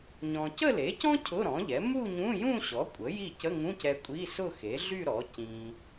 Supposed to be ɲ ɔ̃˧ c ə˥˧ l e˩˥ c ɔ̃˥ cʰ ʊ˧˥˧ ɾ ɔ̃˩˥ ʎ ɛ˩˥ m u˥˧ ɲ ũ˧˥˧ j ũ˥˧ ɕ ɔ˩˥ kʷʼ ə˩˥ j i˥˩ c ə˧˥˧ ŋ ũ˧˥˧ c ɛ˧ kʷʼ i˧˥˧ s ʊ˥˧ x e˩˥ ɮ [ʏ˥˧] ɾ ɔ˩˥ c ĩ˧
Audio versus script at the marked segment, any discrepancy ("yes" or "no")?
yes